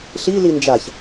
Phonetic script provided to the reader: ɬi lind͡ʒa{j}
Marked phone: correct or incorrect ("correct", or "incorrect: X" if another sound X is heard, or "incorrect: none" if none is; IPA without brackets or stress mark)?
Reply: incorrect: ç